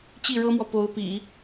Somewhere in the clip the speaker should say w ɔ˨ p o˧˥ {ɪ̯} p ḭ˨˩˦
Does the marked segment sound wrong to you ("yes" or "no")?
yes